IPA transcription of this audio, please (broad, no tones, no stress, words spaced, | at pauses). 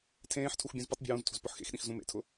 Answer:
tʰẽːħtʰux bʲũzputˤbʲṳ wũztʰṳz pʊħxḛxɗĩx zũmḛtʰʊ